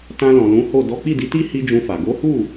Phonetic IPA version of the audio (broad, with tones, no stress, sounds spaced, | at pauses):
t ã˧ l ɔ̃˨ l ũ˨˦ h o˦˨ d ɔ˨˦ k͡p i˦˨ d i˨˦ t i˦ h i˦ d͡ʒ ũ˧ f a˨ ɡ o˨˦ h u˦˨